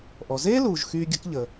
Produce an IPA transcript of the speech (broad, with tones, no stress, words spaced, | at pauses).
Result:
ʔɔ˩zeː˦luː˩ʒxyː˨ ɡʲə̤˦kʎəː˩